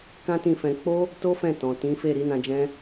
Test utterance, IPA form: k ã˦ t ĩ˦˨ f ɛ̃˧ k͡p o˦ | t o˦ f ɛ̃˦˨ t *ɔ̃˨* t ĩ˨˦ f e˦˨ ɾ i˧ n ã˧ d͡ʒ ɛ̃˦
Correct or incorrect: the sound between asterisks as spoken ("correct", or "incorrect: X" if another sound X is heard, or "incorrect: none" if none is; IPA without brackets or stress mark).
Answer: correct